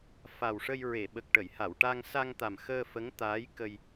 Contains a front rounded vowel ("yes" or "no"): no